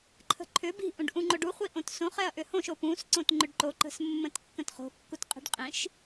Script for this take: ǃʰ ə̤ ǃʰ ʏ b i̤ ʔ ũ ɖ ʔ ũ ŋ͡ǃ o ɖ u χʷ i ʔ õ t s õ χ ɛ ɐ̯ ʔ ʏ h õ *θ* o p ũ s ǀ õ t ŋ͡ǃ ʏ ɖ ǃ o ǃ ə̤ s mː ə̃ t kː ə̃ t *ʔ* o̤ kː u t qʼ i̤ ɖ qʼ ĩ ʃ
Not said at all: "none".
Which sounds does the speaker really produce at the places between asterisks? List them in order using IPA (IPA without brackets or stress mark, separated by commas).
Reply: ʃ, χ